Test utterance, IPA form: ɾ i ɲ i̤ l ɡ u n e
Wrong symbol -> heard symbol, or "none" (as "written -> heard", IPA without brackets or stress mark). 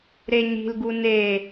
i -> e